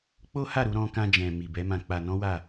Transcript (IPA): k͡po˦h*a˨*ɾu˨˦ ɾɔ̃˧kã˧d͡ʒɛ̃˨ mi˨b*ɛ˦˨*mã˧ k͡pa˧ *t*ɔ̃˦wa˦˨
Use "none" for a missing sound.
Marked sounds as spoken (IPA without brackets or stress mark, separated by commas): a˦˨, ɛ˨˦, n